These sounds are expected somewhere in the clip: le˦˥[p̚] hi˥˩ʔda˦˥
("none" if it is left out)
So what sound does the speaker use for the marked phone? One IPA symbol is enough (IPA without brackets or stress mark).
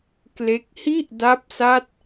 k̚